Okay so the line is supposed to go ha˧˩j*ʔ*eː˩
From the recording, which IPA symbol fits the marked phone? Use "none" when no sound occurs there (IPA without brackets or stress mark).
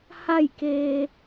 k